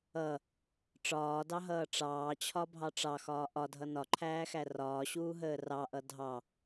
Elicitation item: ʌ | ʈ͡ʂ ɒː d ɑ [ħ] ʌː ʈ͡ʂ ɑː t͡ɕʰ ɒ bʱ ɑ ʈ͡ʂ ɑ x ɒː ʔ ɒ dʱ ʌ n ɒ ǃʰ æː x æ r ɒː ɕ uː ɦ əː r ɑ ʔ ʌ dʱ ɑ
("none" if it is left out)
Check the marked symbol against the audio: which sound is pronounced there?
ɦ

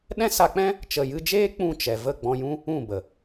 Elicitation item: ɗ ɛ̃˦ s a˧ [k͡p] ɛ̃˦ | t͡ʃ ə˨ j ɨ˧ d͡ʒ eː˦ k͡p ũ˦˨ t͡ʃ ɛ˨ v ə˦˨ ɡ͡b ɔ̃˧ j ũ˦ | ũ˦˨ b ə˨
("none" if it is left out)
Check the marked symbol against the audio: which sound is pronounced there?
k͡p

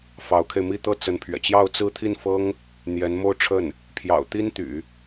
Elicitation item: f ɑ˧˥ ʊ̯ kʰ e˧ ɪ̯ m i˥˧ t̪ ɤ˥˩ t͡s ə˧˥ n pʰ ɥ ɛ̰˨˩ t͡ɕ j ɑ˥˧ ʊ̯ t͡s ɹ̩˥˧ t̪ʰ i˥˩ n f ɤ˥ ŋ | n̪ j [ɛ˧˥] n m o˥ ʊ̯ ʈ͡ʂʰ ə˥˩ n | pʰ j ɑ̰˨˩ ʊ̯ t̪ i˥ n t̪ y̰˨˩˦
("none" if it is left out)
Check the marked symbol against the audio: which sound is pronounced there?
ɛ˧˥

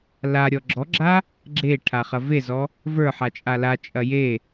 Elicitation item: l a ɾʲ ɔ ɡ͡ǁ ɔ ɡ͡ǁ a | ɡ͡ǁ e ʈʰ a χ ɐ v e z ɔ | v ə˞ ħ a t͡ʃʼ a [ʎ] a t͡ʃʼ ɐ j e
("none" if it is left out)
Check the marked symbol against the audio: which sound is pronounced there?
l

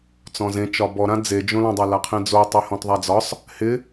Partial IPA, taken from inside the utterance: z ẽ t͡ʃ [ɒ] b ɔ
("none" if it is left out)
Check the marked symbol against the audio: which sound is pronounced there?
ɒ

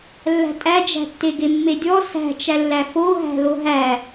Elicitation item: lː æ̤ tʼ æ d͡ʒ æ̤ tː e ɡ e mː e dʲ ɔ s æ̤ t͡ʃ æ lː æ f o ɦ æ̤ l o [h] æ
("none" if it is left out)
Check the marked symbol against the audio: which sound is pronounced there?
ɦ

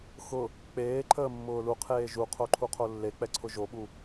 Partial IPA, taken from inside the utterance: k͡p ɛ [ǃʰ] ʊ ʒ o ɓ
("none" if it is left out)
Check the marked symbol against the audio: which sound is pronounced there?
ǀʰ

